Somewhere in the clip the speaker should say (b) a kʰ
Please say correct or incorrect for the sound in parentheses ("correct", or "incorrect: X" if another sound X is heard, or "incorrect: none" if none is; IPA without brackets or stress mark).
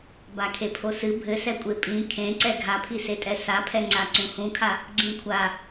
correct